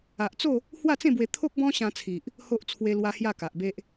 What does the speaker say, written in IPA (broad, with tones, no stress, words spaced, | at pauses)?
a˨ʔt͡so˥˧ | hwa˥˧t͡sẽ˥˧bwe˧ t̪ʰo˦k̚bɔ̃˦ɕã˧t͡sʰi˨ʔ | ho˦ʔ t͡sʰwe˦lwa˦ hja˥˧ka˨ʔbe˦ʔ